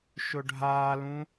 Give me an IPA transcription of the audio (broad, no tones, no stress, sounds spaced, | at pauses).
ʃ ʊ ɖʱ aː l ũ